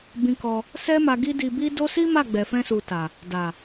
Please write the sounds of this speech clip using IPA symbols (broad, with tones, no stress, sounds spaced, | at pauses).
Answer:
b ĩ˧ k ɔ˧ | s ɛ˦ m a˧ ɡ i˦ d i˧ b i˦ d o˦ s i˦ m a˦˨ ɡ͡b ɛ˨ f ɛ̃˧ s u˨ t a˨ | d a˨